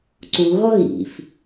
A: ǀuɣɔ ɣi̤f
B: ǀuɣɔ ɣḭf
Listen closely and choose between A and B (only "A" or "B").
B